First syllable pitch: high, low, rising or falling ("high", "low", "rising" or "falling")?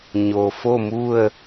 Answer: low